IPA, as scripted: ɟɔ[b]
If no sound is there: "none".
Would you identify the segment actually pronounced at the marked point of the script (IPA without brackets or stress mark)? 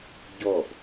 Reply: b